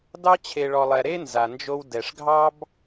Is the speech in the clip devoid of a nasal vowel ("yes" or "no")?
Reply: yes